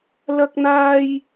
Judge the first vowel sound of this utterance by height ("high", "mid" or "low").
low